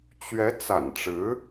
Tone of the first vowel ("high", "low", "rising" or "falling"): rising